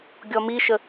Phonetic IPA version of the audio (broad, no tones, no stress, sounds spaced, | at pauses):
ɡʲ ɔ m i ʃ ə